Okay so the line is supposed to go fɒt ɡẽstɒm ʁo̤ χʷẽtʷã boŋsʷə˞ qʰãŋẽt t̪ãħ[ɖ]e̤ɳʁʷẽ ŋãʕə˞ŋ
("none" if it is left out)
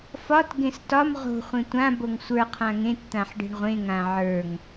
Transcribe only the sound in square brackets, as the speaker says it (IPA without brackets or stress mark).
ɖ